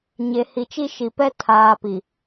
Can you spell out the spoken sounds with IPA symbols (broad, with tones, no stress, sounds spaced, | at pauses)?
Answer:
ɲ e˨ h i˨ t͡ʃ i˦ ʃ i˨ p ɛ˦ tʰ aː˨ p i˨